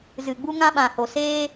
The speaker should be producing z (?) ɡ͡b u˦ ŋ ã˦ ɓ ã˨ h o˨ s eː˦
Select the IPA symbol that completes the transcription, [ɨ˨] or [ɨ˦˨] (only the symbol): ɨ˨